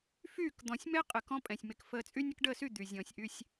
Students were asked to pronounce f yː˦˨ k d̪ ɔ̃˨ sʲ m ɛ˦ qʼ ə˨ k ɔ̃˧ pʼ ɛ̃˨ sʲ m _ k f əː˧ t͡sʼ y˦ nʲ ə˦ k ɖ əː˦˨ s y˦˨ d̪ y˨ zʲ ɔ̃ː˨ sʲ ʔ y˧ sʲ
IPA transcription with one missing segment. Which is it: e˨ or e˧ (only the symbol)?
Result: e˨